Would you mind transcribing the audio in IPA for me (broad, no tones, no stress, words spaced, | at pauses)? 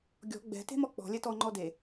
ɡʲɔ̤ ɡ͡bɛ̤ te̤mɔk͡pɔ̤ lʲɛtɔ ŋ͡ǃɔde